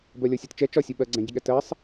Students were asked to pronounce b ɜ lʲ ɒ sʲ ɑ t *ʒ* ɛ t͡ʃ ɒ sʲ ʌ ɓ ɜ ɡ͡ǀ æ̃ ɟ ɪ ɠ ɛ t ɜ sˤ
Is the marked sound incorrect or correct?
incorrect